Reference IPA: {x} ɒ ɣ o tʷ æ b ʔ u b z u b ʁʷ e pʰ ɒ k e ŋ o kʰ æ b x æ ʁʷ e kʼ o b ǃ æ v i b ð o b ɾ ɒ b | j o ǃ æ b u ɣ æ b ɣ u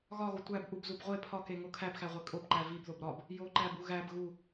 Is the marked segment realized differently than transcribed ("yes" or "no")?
yes